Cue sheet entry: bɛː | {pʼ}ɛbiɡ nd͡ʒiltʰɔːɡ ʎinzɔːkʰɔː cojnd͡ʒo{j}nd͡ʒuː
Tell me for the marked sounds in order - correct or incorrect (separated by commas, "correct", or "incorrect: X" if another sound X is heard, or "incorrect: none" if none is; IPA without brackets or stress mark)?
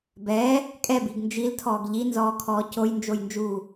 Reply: incorrect: kʼ, correct